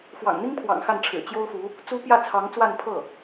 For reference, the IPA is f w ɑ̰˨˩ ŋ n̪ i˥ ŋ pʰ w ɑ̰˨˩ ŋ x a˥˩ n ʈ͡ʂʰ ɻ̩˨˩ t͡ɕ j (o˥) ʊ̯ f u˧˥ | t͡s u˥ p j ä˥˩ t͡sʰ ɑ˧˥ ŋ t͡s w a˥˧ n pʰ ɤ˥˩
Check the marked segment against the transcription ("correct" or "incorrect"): correct